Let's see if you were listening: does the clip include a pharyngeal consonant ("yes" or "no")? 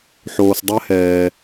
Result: yes